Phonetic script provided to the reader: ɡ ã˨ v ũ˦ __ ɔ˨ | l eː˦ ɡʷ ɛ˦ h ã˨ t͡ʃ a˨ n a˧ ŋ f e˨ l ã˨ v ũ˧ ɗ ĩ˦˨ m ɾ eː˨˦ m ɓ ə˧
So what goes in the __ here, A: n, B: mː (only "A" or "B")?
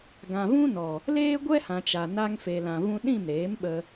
A